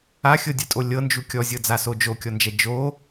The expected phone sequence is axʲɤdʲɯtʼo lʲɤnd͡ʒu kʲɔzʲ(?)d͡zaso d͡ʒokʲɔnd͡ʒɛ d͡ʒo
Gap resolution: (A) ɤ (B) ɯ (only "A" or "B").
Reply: A